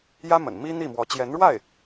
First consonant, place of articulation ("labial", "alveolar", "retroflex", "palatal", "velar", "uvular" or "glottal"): palatal